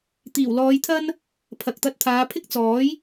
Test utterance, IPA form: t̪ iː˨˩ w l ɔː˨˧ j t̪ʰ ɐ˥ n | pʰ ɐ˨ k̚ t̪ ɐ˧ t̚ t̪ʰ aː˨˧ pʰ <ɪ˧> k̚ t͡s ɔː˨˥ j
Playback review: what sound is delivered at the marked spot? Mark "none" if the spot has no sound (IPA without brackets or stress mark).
ɪ˥